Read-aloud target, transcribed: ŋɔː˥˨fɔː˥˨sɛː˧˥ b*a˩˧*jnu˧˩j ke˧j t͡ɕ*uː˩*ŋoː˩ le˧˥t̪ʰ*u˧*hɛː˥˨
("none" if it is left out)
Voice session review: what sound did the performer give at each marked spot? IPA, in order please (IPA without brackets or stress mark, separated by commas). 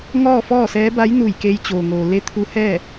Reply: a˧˥, oː˩, u˧˥